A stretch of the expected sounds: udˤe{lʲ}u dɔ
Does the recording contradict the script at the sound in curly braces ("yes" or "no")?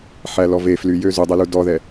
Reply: yes